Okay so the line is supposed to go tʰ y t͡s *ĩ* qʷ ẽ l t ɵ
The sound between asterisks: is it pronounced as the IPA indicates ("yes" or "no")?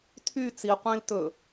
no